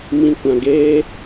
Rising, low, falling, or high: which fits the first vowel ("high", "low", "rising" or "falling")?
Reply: low